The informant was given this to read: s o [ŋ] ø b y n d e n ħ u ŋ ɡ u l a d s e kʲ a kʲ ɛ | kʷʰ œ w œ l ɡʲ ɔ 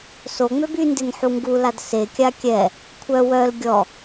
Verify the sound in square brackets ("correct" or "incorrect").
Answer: incorrect